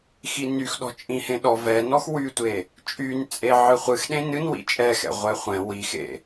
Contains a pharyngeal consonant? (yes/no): yes